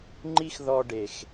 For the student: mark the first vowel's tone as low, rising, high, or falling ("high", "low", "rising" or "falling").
high